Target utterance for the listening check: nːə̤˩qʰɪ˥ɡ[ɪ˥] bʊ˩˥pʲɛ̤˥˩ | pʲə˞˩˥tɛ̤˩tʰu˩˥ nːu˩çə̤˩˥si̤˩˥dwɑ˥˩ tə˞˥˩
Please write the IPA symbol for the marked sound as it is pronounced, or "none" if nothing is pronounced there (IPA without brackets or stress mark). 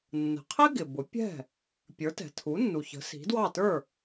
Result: ɪ˩